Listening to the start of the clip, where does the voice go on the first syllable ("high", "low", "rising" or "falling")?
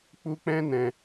high